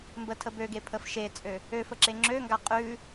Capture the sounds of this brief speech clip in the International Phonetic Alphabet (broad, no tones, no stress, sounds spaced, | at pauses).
m b ə tʰ ə b ø ɡ e pʰ ə f ʃ e t͡sʼ ø | ø f ə ǁ e ŋ͡ǁ ø ŋ ɡ a qʼ ʉ